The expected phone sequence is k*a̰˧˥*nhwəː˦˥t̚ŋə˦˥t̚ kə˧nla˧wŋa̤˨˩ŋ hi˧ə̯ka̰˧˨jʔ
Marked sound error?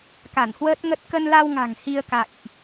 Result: yes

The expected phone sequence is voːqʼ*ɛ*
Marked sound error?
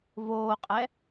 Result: no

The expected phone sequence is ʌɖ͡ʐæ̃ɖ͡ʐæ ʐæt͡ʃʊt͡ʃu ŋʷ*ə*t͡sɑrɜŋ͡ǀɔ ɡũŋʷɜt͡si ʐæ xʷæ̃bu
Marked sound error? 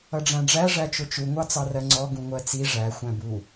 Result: yes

